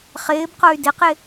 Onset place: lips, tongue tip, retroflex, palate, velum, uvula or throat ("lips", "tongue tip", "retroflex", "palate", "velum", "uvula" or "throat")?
uvula